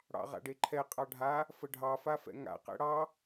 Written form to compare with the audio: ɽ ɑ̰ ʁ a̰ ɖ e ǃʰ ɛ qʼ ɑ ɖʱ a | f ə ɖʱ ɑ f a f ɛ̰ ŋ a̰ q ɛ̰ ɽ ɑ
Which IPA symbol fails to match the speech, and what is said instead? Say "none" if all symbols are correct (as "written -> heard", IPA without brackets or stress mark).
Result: none